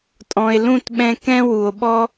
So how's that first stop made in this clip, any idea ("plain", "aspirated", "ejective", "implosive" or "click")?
ejective